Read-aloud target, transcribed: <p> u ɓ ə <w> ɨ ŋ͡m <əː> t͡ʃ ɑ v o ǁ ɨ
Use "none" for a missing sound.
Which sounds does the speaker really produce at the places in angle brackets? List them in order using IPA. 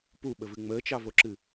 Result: p, v, əː

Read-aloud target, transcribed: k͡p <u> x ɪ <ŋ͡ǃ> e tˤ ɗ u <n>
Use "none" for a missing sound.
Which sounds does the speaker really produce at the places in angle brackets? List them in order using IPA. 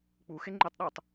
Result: u, ŋ͡ǃ, tˤ

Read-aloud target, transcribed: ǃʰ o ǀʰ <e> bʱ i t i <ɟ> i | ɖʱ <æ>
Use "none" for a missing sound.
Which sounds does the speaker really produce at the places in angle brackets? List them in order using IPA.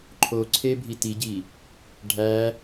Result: e, ɟ, æ

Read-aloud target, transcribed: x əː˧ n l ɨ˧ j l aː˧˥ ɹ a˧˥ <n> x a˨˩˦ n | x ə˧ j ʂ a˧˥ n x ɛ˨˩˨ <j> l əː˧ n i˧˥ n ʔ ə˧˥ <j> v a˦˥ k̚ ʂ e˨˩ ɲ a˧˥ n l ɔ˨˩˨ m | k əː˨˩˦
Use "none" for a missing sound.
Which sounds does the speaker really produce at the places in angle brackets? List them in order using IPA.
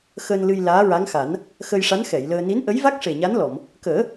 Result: ŋ, j, j

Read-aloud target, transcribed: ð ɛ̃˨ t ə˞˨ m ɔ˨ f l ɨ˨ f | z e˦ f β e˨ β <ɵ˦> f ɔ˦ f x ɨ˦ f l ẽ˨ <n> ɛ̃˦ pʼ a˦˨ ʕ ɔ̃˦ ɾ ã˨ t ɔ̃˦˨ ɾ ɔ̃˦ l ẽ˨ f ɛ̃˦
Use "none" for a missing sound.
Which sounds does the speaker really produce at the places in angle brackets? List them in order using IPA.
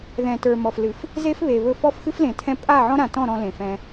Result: ɵ˦, tʰ

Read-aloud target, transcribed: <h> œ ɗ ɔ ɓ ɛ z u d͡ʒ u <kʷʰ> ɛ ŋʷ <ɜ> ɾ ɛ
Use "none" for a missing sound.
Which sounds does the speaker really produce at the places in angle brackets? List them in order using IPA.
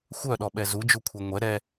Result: xʷ, kʷʰ, ɛ

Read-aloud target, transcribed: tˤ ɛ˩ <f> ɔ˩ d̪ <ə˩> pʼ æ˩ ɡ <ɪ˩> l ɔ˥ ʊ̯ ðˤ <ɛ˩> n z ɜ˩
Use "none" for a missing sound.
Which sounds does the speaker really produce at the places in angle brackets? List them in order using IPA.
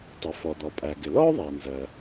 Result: f, ɔ˩, ɪ˩, æ˩

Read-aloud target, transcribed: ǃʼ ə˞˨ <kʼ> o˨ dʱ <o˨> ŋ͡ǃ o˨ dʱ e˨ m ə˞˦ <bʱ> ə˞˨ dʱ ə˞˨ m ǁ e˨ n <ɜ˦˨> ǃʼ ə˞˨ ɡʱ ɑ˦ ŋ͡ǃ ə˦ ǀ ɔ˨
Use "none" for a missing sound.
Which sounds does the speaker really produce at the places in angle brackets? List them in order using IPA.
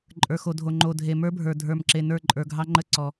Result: x, o˨, bʱ, ə˞˦˨

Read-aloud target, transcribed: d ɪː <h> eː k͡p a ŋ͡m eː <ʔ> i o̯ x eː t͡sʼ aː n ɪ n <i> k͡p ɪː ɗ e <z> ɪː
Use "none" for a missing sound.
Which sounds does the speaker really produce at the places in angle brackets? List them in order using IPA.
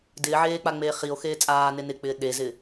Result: ʕ, χ, ɪ, z

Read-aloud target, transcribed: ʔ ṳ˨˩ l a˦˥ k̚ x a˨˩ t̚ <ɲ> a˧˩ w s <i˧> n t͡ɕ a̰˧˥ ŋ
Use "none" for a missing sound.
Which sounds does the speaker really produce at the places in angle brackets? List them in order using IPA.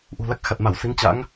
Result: m, i˨˦

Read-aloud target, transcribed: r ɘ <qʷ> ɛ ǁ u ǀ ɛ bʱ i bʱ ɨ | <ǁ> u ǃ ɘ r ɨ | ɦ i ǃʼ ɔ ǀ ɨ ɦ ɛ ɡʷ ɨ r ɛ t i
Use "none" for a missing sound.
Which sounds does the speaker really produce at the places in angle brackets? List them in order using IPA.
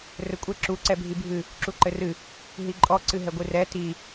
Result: kʷʼ, ǁ

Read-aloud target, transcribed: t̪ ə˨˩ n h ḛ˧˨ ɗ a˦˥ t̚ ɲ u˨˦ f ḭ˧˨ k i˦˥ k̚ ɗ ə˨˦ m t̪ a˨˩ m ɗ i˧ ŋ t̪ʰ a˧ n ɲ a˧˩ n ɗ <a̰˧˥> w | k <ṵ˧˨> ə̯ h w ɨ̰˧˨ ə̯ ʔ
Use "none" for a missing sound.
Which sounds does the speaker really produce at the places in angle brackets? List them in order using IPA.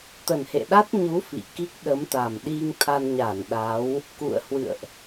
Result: a˨˦, ṵ˧˨

